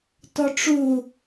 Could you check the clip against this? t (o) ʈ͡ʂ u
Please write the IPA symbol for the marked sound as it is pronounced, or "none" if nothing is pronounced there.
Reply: ɔ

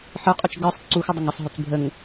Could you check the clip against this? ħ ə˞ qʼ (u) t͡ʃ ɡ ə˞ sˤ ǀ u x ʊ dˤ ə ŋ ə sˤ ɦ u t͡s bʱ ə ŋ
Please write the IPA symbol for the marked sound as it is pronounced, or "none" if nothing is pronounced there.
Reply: u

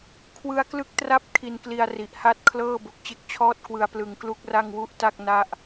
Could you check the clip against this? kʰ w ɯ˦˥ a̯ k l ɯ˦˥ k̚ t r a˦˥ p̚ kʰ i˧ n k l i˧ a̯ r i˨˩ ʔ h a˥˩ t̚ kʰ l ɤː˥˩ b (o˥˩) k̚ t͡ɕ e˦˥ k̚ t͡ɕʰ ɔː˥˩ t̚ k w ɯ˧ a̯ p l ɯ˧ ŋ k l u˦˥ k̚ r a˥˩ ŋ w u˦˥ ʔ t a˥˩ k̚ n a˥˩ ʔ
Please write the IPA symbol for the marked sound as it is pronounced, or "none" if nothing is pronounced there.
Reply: o˨˩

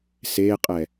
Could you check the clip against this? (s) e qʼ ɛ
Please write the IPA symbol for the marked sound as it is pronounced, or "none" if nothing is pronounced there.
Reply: s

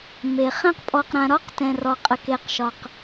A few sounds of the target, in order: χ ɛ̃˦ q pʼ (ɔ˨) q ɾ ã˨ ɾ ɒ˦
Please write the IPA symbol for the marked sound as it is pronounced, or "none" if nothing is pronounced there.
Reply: ɔ˨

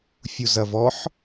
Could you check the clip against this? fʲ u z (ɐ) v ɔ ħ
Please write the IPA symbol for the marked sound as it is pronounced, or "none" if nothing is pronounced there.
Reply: ɐ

